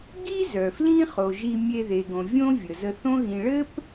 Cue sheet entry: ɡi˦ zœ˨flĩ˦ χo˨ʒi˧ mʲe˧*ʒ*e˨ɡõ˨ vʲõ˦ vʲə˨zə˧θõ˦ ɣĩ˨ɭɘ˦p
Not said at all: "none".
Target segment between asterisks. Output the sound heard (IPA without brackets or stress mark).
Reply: ð